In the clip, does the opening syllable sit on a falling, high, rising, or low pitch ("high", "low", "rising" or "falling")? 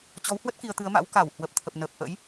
rising